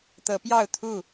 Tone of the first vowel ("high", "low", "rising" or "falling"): rising